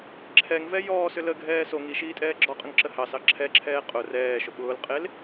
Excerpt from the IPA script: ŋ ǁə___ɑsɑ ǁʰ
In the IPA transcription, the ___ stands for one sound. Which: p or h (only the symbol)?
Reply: h